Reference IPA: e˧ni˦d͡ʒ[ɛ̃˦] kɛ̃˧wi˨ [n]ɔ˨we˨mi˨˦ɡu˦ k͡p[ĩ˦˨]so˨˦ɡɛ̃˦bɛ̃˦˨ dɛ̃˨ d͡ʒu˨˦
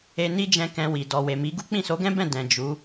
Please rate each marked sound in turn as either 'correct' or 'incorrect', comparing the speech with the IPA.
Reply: incorrect: ɛ̃˧, incorrect: d, correct

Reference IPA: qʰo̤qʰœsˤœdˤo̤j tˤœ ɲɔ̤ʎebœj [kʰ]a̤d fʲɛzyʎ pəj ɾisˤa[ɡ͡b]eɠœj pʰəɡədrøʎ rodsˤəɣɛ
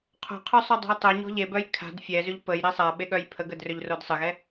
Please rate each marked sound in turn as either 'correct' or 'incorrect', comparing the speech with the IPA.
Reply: correct, incorrect: ɓ

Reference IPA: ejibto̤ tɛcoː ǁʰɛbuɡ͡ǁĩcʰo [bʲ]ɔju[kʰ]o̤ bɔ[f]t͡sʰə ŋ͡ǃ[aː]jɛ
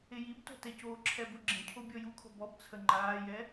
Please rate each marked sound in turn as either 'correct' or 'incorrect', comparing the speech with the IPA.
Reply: correct, correct, incorrect: b, correct

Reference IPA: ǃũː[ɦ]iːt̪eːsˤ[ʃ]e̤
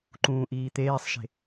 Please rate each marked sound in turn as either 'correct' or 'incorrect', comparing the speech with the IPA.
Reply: incorrect: ʔ, correct

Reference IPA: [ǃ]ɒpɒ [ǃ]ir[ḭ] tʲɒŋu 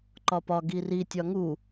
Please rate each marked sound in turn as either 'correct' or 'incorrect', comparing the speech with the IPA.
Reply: correct, incorrect: ɡ, incorrect: i

